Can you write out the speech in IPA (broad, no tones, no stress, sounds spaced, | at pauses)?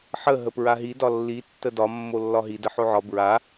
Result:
ħ ə ɦ ə p ɹ a ɦ i d ɒ lː i tː ə d ɒ mː o lː ɒ ɦ i d ə ħ o ʕ ɒ b ɹ a